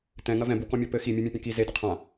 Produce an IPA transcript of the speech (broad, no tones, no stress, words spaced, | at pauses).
tɛ̃ŋɐ vɛ̃bukɔ̃mʲɔ pɘ ximʲumʲãpʲɛ̃ ki zedɘ qʰã